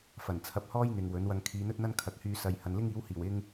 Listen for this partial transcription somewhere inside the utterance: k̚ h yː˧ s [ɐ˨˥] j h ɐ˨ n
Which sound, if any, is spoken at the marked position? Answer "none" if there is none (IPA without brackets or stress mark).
ɐ˨˧